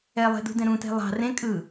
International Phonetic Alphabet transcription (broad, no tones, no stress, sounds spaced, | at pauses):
ɛ lˠ e̤ d ṳ d ɛ̃ ɾ ũ t e̤ lˠ ɑ̤ r ẽ kʼ ɯ